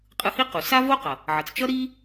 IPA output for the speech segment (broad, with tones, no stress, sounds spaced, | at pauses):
qʼ ɯ˧ h i˥ q u˩ s a˥ v o˥ q ʌ˩ | ʕ ʌ˩ t͡s t͡ʃ ʌ˥ ɾ i˥